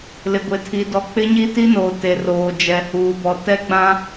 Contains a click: no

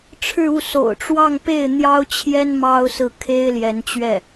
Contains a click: no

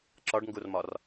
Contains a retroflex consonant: yes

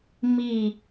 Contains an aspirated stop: no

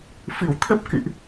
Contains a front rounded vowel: no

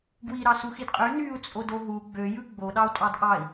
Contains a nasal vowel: no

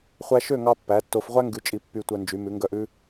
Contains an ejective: yes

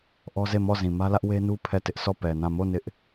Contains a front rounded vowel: no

